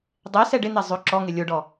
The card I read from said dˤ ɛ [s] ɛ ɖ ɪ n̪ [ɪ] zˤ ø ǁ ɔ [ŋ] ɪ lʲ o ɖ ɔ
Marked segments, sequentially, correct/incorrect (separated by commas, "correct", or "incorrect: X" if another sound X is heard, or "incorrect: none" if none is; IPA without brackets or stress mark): correct, incorrect: ɛ, correct